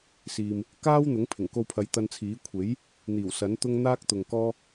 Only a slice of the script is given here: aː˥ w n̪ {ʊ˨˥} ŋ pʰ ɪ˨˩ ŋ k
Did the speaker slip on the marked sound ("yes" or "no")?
no